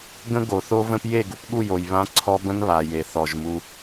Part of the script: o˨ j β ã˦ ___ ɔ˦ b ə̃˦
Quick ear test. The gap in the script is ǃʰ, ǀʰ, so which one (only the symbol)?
ǀʰ